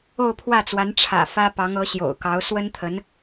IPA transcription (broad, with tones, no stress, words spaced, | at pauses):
o˥˧ʊ̯pʰwä˥˩t͡swa˧˥n ʈ͡ʂʰä̰˨˩ fä˥ pɑ˧˥ŋɤ˧˥ɕjo̰˨˩ʊ̯kɑ˧˥ʊ̯ swə˥nt̪ʰə˧˥n